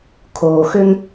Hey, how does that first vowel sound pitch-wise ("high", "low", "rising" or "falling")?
low